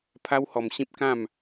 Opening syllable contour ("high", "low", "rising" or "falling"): high